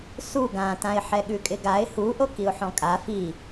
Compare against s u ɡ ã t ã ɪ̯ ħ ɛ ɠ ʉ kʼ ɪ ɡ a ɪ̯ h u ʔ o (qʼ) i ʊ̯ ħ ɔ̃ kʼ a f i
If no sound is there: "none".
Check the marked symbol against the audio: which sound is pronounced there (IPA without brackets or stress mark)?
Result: k